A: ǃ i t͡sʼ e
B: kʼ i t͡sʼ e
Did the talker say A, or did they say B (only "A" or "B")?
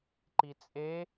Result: A